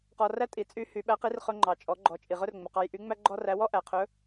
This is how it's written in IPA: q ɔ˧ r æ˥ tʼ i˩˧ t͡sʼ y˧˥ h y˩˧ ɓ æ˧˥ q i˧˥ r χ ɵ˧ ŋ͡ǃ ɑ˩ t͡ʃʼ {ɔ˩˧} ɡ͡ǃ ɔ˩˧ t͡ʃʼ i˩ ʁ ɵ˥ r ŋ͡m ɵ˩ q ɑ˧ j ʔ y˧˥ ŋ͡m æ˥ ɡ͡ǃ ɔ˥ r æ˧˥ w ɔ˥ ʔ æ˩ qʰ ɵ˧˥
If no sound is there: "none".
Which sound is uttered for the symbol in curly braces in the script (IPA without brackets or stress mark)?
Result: ɔ˩˧